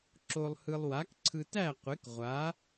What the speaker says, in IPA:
ǁo˧lˠ hɯ˧lˠwa˨˥k ǀʰɯ˧tæ˥˨ qʷe˨˥k ʁʷa˨˥

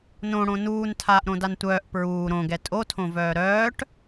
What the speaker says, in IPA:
nõ ɽõnuːn tʰaːʔɾõdantʷœːʔ pɹuː ɾõɡɛ tʼotʰõvœː ɾœːʈ

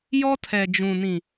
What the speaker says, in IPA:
jɔ˦tʰɛ˨d͡ʒũ˨nĩ˨

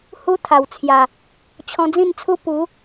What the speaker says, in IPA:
hu˦t̪ʰa˨˩wt͡sʰja˨˩ | t͡ɕʰɔ̃˧d͡zĩ˥˧nt͡sʰu˦ pu˨˦

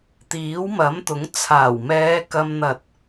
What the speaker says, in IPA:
t̪iː˨˥wmɐ˨˥mt̪ʊ˨˥ŋ t͡sʰaː˨˩wmɛː˨˧ kɐ˧m n̪ɐ˨t̚

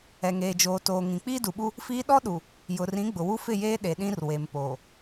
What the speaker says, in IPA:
ɛ˨ŋeː˨d͡ʒoː˨toː˨ ŋĩ˨ k͡piː˦du˨ɓu˦ | fiː˦ ɗɔ˦ɗu˨ | jʊ˨rĩ˨˦ ɡ͡bʊ˨wu˦ fɪ˦˨jeː˦ ɗe˨ɗĩ˦r we˨mpoː˨

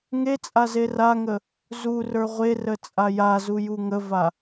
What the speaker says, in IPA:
ŋet͡sʼa zeraŋə | zurə˞ ʁʷerə t͡sʼajazu juŋəva

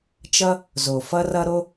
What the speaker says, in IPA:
t͡ʃʌ˦ | zo˩ fʌ˦rʌ˦ ɾo˦

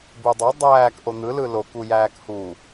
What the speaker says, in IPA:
budˤo dˤæːk ʔon̪ɯ lɯlok ujæːkhu

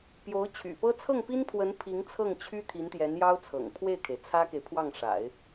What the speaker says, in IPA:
pjo˧˥ʊ̯t͡ɕʰy̰˨˩pɤ˥ t͡sʰɤ˥˩ŋpi˥npʰwə˧˥n pʰi˧˥ŋt͡sʰɤ˥˩ŋt͡ɕʰy˥ t̪ʰi˧˥nt̪jɛ˧˥njɑ˥ʊ̯ t͡sʰɤ̰˨˩ŋpʰwe˥˩ɪ̯kʰe˩ɪ̯ t͡sʰä˥ke˨ɪ̯ pʰwɑ˥˩ŋʂa̰˨˩˦ɪ̯

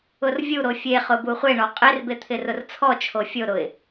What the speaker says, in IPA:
ʊrvʲu ɾofʲeχʊbu χʷeɳɔ qʼerbet̪ʰɪ rʊrt͡sʰɔt͡ʃʰo fʲoɾʊɪ̯

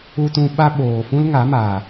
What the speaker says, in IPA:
u˧tũ˧ ɓa˦ ɓoː˨fũ˦l ŋa˨˦maː˨

